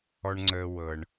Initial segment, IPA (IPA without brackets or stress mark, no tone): ɔ